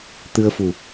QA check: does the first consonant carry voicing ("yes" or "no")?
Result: no